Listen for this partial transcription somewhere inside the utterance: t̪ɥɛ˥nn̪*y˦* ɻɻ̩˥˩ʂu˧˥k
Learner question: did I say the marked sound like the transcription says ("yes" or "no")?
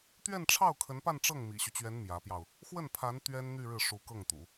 no